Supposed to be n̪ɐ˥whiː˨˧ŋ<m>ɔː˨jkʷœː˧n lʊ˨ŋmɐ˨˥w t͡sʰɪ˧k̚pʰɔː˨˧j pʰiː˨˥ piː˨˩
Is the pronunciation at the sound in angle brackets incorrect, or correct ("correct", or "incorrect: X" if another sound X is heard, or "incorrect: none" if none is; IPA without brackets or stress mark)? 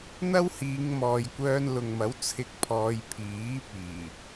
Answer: correct